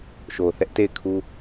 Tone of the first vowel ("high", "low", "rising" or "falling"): low